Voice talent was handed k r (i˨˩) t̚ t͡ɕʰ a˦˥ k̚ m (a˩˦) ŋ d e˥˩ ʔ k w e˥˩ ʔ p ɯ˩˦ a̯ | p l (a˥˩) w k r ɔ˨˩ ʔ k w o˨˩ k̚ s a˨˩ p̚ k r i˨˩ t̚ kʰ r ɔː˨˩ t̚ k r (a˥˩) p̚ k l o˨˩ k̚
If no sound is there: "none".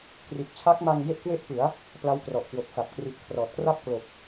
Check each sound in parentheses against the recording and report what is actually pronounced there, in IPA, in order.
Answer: i˨˩, a˧, a˦˥, a˥˩

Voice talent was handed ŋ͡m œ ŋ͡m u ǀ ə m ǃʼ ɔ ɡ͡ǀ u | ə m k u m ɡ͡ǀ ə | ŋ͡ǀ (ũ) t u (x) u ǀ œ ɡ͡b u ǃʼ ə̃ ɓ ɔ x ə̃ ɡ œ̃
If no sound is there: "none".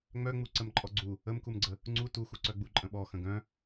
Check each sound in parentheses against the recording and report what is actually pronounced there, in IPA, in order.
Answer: u, x

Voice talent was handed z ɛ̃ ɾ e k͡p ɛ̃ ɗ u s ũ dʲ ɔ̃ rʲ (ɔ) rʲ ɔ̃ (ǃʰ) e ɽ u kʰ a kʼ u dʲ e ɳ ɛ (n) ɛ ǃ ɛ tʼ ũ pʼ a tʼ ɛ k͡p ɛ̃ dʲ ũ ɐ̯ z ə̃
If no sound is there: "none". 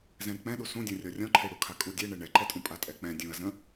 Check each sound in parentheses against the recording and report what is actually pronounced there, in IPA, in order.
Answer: ɔ, ǃʰ, ɳ

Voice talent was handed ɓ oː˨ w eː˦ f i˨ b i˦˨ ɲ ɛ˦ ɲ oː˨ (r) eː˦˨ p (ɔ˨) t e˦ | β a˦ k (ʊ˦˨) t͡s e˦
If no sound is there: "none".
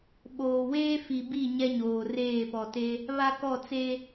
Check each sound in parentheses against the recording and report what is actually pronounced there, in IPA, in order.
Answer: r, ɔ˨, ɔ˦˨

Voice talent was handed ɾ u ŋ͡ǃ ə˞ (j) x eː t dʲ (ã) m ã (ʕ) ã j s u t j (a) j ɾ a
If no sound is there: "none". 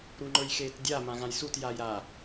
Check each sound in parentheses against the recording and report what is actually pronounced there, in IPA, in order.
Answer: j, a, ɣ, a

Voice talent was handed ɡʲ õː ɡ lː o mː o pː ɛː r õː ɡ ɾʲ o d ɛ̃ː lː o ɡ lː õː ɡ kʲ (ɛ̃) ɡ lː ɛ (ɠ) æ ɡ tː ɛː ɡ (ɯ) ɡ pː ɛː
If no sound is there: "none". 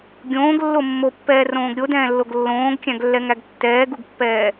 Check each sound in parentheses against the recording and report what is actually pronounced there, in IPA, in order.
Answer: æ̃, ŋ, u

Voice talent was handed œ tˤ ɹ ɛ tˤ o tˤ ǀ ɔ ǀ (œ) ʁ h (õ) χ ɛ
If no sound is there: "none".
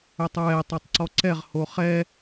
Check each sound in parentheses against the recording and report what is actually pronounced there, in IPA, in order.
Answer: ɛ, o

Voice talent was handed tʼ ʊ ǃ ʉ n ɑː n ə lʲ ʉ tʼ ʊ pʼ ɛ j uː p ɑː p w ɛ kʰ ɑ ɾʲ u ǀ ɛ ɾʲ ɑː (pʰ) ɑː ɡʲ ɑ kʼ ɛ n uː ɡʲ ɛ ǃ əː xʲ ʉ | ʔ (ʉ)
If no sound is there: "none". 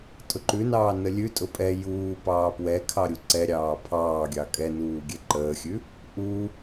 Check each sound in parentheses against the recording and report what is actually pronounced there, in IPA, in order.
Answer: pʰ, u

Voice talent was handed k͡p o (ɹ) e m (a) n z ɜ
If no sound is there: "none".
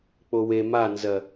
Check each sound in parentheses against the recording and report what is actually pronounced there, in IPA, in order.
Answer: w, a

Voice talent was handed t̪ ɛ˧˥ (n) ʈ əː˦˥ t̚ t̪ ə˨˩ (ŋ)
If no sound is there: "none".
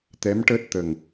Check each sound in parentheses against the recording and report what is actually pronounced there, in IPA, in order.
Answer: m, ŋ

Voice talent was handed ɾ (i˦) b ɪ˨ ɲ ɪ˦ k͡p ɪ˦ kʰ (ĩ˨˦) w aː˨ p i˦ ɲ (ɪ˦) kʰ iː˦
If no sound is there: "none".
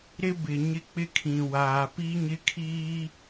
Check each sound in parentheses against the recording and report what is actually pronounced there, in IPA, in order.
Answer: ɪ˦, ĩ˨, ɪ˦

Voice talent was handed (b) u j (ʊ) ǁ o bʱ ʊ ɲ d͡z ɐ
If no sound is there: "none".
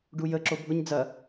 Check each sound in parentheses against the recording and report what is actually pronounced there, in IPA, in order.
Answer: ɖ, ə

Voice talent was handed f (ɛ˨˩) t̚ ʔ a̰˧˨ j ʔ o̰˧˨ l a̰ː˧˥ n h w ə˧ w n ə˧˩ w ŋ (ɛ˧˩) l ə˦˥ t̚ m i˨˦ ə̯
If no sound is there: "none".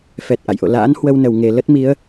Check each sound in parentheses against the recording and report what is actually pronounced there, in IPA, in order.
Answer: ɛ˨˩, e˧˩

